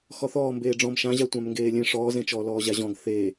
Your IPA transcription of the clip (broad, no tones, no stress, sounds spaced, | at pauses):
x ɔ θ ɔː m b eː ɖ͡ʐ ɔ̃ m ʃ ã ʑ a tʷ ã m ŋ ɡ eː lʲ ẽ ʂ ɔː z ẽ t͡ʃ ɔː l ɔː ʑ a ʑ ɔ̃ ɡ θ e